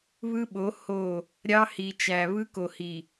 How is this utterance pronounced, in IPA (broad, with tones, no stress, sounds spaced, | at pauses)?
β ɯ˦ ɓ o˨˦ h o˦˨ | ɾʲ ɑ˦ h i˨ t͡ʃ æ˨ β ɯ˦ k o˨ h i˨